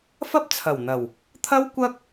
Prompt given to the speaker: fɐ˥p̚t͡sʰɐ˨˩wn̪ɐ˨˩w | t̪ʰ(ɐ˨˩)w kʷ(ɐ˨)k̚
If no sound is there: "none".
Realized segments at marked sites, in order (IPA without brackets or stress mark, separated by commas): ɐ˥, ɐ˥